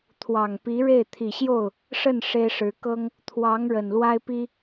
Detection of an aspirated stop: present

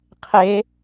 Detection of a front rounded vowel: absent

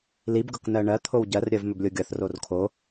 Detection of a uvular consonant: absent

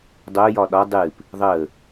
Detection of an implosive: present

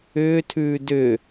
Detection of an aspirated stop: present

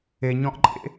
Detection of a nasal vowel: present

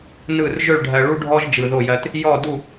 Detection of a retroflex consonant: present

